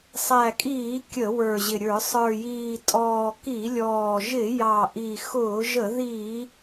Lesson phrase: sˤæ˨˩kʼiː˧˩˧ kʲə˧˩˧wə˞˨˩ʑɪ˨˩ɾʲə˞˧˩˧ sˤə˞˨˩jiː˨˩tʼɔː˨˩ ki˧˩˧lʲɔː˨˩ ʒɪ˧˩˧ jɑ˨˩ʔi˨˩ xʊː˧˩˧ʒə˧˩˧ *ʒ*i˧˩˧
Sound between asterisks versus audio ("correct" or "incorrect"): incorrect